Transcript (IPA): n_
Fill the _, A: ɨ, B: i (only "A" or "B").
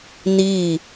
B